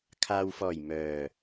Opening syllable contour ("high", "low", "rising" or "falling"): low